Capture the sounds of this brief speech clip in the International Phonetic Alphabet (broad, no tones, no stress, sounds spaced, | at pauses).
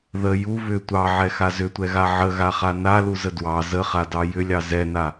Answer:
ð ə j u β ʏ tʷ ɑ ʕ ɛ x a z ʏ tʷ ɛ ɣ a ʕ ə ɣ a χ a n a l u z ə d w ɑ z ə χ a d ɑ j ʏ lʲ ɑ z ɛ n a